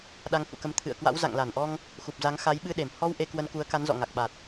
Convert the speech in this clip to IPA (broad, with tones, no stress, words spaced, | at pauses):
ɗa˧ŋhṵ˧˨kə˧m t̪ʰɨ̰˧˨ə̯kwa̰˧˥w za̰˧˨ŋla˧˩nʔɔ˧ŋ | xu˨˩p̚za˨˦ŋ xa˨˦jɓɨ˧ɗe˧˩m hɔ˧w ʔe˧kwə˧nku˨˦ə̯ ka˨˦nzɔ̰˧˨ ŋa˨˩k̚ɓa˨˩t̚